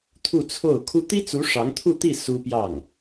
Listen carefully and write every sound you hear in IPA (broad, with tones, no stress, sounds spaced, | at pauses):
t̪ʰ u˥˧ t͡sʰ o˥˩ ʊ̯ kʰ u˥ t̪ i˥ t͡s u˧˥ ʂ ɑ˧˥ ŋ t̪ʰ u˥˧ t̪ i˥˩ s u˥ p j ɑ˥˩ ŋ